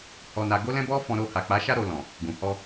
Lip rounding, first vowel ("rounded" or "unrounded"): rounded